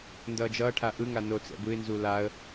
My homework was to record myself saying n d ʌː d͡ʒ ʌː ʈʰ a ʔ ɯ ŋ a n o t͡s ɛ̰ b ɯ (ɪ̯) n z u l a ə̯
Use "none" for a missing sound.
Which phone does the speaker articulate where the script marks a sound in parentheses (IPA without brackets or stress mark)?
ɪ̯